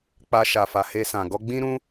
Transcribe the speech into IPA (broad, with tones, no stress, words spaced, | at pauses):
k͡pa˧ʃa˨fa˨ he˧sã˨ ɡɔ˧ɡ͡bĩ˦ɾũ˦